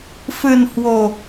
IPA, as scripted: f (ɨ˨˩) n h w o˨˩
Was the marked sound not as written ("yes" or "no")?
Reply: no